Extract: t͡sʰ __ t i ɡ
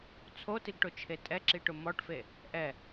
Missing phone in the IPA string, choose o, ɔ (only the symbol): o